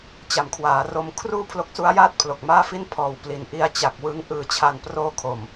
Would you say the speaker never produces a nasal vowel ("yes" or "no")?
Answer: yes